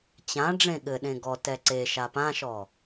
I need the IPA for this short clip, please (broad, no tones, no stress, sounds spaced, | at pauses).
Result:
t͡ɕ ã ɖ͡ʐ ẽ ɠ ɘ ɗ ẽ ɡ ɔ t ɛ ǀ e ʃ a p ã ʃ ɔ